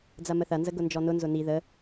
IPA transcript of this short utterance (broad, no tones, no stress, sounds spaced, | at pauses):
d͡z ɐ m ə θ ɐ n z ə ɡ ʊ n d͡ʒ ɔ n ʊ n z ʊ n i ð ə